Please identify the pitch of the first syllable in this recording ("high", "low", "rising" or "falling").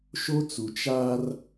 high